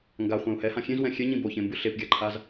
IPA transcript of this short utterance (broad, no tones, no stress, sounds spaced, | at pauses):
ŋ ɡ a χʷ ɛ̃ u̯ h ɛ h ã xʲ ẽ z w ɛ̃ xʲ ɛ ɲ ĩ b o ç ẽ m b ɯ ɬ e p ɡʲ a ǃʰ a z